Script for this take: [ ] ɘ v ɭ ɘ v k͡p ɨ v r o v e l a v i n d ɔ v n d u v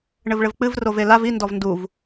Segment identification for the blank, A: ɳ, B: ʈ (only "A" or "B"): A